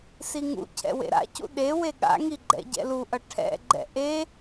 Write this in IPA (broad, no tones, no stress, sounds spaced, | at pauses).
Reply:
s i ŋ ṵ cʰ ɛ̰ w ḛ ɾ a̰ c ṵ ɗ e w e ɠ a̰ ŋ i ɡ͡ǃ ɛ̰ ɟ ɛ̰ l u ʔ ʌ ʈʰ ɛ̰ ɡ͡ǃ ɛ̰ ʔ e